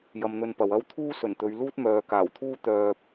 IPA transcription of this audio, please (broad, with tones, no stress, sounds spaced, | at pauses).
j ɐ˧ m n̪ ɵ˧ n p ɐ˨ w ɐ˥ w t̪ʰ uː˥ s ɵ˨˩ n t̪ ɵ˨˧ ɥ l uː˥ t̚ m œː˨˧ k aː˨˩ w t̪ʰ uː˥ t̪ œː˧ p̚